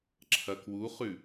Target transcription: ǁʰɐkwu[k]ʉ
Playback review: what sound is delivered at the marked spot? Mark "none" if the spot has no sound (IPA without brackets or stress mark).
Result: χ